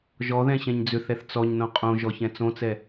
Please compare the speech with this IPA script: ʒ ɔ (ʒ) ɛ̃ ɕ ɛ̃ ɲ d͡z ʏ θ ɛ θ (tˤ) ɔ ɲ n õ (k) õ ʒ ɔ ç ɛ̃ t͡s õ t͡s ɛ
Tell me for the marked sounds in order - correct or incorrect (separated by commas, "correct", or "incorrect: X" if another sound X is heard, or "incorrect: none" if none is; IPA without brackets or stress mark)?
incorrect: ð, incorrect: t͡s, incorrect: qʼ